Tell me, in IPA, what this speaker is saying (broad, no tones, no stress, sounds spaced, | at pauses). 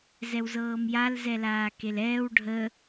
z ɛ w z ɤː m j a l z ɛ l aː k e l ɛː w ɖʱ ə